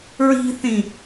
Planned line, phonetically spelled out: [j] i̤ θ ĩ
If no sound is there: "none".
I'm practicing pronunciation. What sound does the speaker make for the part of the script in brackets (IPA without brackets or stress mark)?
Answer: ɹ